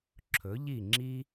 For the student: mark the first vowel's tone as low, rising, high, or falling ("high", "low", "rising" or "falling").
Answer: rising